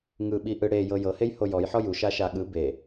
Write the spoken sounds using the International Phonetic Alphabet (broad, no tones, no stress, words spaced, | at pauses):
ŋɯɓiʔɯ ɽejɤ jɤhejho jɔjħɔ juʃaʃa ɠɯ be